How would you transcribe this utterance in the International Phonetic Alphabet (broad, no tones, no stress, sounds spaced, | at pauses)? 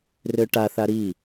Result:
r ø ʈ a θ a ɾ i